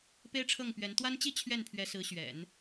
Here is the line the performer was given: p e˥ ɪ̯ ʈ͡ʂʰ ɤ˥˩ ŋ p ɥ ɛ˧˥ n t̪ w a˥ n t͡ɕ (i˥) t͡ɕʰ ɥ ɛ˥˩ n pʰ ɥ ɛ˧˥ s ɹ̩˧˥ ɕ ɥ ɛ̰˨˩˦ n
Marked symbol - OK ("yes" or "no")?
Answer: yes